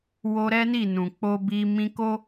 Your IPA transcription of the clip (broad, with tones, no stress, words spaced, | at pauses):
wo˧ɾɛ˦ni˦˨ nũ˨k͡po˧bi˧ mĩ˧ko˦